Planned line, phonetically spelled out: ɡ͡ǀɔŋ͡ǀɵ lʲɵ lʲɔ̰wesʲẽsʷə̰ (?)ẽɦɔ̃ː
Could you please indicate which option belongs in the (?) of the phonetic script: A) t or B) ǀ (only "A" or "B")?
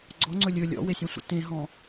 A